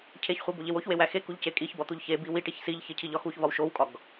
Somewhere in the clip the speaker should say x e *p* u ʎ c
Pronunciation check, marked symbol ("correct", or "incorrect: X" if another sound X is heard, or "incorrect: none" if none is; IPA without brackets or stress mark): incorrect: k